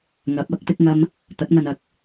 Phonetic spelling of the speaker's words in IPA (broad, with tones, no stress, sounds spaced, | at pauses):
ŋ ɐ˨˥ p̚ ɐ˨˥ k̚ t̪ ɪ˥ k̚ ŋ ɐ˥ m | t̪ ɐ˨˥ t̚ ŋ ɐ˧ n ɐ˧ k̚